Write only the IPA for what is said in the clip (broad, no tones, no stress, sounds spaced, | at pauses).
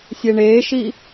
sʲ e ɳ eː ʃ i